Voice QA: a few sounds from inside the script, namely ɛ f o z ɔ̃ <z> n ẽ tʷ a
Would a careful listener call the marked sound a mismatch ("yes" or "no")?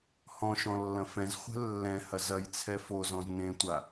no